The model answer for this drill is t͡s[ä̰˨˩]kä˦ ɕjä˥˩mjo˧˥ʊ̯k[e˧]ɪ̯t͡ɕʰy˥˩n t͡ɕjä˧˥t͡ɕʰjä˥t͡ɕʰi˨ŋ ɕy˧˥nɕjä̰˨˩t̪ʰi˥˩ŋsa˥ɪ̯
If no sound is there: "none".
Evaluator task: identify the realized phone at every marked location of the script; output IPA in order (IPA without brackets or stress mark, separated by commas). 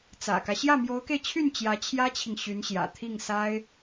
ä̰˨˩, e˧